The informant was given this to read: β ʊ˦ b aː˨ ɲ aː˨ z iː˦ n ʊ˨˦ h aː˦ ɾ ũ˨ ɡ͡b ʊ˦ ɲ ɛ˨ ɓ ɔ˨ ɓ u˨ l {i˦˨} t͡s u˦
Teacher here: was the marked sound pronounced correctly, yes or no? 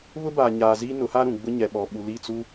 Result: yes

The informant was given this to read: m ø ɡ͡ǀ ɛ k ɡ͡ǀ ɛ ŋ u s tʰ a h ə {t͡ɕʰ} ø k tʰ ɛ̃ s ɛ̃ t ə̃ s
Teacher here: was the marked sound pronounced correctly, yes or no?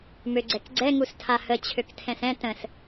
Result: yes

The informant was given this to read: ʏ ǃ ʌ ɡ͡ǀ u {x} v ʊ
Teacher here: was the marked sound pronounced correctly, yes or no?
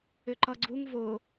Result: no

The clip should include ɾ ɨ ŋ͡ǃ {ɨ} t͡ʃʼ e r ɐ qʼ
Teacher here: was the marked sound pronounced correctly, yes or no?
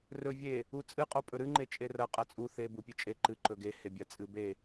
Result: no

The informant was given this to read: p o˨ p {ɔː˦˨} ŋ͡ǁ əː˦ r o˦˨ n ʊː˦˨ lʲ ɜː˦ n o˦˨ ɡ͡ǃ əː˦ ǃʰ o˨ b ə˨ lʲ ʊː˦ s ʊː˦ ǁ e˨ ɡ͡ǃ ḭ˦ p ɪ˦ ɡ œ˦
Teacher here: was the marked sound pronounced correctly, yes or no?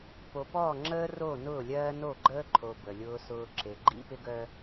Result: yes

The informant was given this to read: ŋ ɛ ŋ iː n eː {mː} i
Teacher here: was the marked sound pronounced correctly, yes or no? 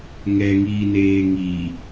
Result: no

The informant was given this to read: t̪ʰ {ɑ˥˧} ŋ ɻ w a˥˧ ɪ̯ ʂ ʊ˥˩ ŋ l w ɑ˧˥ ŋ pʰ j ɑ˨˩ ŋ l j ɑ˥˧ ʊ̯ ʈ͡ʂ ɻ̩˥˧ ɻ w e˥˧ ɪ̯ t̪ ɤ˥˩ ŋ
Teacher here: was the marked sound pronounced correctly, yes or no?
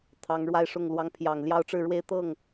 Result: no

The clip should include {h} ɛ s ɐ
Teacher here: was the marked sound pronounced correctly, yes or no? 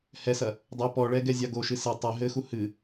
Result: yes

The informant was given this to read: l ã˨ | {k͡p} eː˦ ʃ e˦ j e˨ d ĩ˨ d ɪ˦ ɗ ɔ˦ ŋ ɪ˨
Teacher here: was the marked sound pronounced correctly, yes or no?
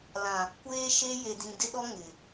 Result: no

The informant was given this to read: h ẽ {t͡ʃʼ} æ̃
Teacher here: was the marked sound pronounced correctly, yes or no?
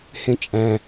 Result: yes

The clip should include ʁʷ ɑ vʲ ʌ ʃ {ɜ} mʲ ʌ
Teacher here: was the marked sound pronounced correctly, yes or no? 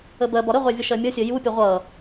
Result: yes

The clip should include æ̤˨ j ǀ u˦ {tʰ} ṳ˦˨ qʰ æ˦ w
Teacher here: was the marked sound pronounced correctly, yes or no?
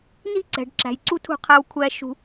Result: yes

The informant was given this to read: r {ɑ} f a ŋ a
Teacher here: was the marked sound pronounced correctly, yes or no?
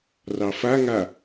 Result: yes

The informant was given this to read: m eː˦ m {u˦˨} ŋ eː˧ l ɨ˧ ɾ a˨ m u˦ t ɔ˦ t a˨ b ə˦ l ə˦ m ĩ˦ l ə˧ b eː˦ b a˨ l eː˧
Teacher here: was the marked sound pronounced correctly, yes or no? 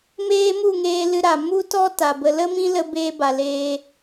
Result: yes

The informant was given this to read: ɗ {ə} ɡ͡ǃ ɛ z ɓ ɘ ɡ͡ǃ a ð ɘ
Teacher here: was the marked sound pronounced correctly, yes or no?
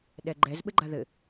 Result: no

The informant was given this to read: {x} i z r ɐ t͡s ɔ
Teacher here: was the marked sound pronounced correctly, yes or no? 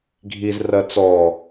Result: no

